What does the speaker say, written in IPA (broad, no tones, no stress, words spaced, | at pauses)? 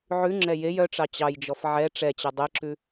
ʕʉŋ͡ǁɛ jej œʈ͡ʂɑ t͡ɕɑjd͡ʒɔf ʕɛ ʈ͡ʂɛt͡ɕɛ dˤeǁʉ